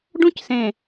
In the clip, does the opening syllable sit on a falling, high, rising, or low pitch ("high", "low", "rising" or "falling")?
high